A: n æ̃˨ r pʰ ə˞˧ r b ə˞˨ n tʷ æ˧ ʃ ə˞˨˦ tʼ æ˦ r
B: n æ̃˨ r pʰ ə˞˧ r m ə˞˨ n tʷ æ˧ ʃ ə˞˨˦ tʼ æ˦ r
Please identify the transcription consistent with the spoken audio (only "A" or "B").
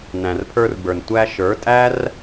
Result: A